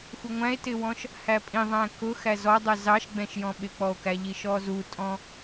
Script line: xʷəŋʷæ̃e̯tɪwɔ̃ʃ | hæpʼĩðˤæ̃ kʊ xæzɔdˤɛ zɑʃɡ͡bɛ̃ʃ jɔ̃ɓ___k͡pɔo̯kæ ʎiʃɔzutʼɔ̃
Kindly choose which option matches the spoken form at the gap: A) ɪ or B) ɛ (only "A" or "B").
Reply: A